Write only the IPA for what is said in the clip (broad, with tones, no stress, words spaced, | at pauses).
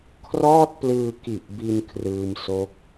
kʰrɔː˥˩t̚plɯː˧ ki˨˩ʔbi˧n kʰrɯː˧mso˦˥k̚